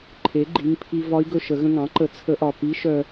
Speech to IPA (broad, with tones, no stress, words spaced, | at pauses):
ǃʰe˩˥ɡ͡ǃi˩˧˩ŋpʰi˧ vɒ˧˥i̯ɡɵ˧ʃə˨˩˦ ɣə̃˧ŋɑ̃˩˥ǃə˨˩˦ t͡sʰə˧˥ʔɒ˩˧˩ pi˧˥ ʃœ˧